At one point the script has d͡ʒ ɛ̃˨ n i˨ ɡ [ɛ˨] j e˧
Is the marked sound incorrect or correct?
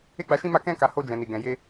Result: incorrect